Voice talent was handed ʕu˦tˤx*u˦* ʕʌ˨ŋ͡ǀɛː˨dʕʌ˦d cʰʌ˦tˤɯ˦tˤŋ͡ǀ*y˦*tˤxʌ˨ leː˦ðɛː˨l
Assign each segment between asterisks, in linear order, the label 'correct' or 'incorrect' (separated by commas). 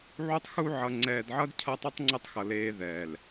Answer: correct, incorrect